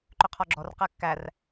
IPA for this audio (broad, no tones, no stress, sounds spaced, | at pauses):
ǃ ø qʰ ɔ ɡ͡ǁ ɔ r q æ kː æ r